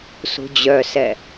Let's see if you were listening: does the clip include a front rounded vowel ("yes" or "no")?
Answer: yes